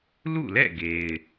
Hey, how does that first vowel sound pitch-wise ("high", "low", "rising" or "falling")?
falling